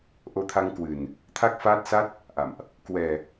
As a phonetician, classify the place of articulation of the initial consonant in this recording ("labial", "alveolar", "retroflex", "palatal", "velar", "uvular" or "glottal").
glottal